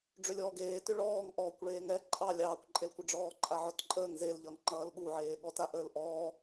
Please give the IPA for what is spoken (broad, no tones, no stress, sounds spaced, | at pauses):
ɖ͡ʐ ʏ lʲ ɔː ɡ eː t ʏ ɭ ɔː ŋ ʔ ɔː kʷ ɭ eː ŋ ɛ ǃʼ ɑ lʲ ɑː kʷ ǃʼ e l kʷ ə ɖ͡ʐ ɔː ǃʼ a ʕ ɔ t ǃʼ əː ŋ z e l ʎ ʌ ŋ ŋ͡ǃ ʌː l ɠ u ʕ eː ɠ ɔ t a ʔ əː l ʔ ɔː